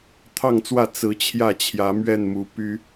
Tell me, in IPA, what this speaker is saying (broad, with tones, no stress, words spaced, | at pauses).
t̪ʰɑ˥˨ŋt͡swä˥˨ t͡sɹ̩˨˦ t͡ɕʰjä˥˨t͡ɕʰjä˨˦mɥɛ˥˨nmu˨˦ py˦